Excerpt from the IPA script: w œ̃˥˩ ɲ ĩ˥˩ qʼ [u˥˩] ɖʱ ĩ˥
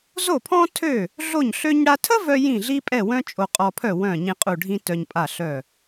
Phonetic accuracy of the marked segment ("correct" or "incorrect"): correct